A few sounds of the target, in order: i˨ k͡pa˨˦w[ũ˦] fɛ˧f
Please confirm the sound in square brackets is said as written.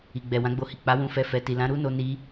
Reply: no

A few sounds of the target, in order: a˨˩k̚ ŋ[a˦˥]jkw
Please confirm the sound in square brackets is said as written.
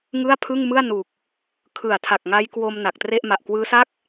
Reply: yes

